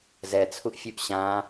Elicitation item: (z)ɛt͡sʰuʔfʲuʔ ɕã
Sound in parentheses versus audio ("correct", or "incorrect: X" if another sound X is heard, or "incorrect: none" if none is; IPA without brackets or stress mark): correct